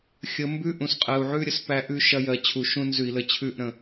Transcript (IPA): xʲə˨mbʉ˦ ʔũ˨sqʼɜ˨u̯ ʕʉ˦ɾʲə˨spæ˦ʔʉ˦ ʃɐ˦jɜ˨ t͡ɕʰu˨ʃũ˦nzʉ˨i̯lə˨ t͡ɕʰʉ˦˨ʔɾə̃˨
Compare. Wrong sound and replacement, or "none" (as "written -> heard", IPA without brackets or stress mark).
none